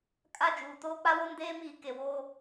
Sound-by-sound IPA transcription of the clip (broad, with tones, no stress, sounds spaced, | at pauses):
kʼ a˦˨ d͡ʒ uː˨ t oː˦ k͡p a˦ w o˦ n d eː˦ m iː˨ k e˨ w o˦